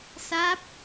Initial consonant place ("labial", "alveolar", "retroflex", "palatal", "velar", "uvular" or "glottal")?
alveolar